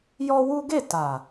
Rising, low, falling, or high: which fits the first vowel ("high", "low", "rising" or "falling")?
high